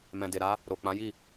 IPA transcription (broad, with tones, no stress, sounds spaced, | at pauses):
m ɛ̃˨ d e˨ ɾ a˨˦ | ɾ o˨ k͡p ã˨˦ j i˦˨